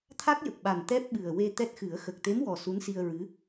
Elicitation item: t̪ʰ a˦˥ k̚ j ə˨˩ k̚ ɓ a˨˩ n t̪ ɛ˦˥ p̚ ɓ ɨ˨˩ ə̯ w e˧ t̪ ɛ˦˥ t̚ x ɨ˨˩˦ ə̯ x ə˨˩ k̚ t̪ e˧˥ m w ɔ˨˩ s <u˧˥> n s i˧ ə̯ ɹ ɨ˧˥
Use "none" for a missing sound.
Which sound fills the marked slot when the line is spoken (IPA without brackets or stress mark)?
u˧˥